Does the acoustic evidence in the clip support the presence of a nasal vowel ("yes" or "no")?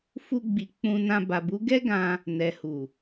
yes